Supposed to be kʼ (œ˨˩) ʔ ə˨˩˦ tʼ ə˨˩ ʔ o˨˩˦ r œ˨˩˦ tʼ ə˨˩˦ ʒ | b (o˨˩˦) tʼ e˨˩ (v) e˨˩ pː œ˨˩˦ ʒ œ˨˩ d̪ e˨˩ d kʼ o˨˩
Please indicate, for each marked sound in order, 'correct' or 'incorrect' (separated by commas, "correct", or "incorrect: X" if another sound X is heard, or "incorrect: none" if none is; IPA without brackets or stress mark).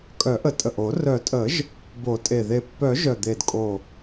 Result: incorrect: œ˨˩˦, correct, incorrect: ð